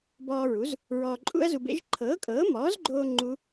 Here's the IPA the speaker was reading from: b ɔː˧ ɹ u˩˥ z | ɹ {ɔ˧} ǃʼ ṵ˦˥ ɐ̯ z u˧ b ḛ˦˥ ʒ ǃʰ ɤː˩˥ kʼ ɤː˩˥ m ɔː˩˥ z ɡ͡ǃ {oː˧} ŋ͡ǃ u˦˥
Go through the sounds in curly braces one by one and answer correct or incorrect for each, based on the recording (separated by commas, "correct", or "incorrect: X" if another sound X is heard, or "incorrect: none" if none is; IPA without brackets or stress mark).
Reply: incorrect: ɔː˧, correct